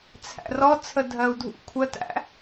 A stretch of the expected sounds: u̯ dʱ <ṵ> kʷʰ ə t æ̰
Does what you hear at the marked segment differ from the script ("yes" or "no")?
no